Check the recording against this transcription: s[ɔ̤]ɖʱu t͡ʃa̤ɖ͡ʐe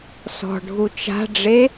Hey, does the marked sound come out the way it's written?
yes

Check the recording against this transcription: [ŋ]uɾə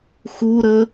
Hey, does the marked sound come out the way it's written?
no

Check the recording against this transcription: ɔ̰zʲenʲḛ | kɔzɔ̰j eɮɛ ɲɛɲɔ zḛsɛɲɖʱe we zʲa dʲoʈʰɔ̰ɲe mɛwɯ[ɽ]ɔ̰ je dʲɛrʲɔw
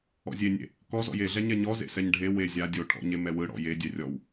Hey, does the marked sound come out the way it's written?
yes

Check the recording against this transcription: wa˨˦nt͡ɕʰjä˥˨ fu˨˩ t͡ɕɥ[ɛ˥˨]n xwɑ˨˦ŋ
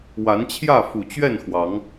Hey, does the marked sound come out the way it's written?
yes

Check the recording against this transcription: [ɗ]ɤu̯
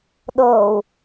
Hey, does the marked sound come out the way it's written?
yes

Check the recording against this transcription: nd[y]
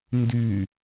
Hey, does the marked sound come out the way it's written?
yes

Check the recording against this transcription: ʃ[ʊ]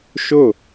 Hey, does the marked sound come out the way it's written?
yes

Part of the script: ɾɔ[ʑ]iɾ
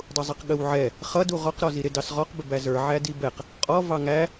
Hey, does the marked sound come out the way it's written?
no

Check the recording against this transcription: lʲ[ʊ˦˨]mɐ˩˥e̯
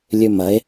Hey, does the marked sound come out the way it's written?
no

